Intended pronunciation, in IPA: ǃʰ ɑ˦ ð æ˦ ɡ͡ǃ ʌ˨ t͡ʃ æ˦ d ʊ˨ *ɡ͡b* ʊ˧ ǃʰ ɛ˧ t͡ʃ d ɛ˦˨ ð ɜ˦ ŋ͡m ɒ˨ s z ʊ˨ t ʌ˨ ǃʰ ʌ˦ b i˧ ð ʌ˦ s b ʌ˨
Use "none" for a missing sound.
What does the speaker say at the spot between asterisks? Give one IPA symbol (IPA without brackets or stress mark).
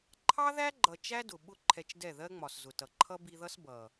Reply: ɓ